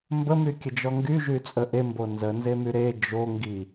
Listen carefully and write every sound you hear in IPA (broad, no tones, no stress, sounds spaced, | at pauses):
m b ə m y kʲ ə d͡ʒ ɔ ŋ ɡ y ʒ y t͡sʼ ə ʔ e m b o n z ə n z e m y ɾ e d͡ʒ o ŋ ɡ i